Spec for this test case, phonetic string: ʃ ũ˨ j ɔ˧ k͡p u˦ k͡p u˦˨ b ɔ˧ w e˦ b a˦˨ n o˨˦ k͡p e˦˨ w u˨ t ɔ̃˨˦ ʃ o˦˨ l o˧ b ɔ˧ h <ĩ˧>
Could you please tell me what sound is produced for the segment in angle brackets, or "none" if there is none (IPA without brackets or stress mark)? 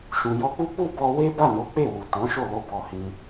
ĩ˧